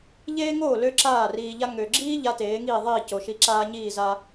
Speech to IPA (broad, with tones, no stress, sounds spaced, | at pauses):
ʎ eː˥ ŋ oː˥˩ l ø˥ ǁ aː˥˩ r iː˧ ʎ a˥ ŋ ø˩ ɡ͡ǁ iː˥ ʎ a˥ t eː˩˥ ŋ iː˥˩ ðˤ iː˥˩ c o˩ ʃ i˧ ǁ aː˥ ɲ iː˥˩ z a˧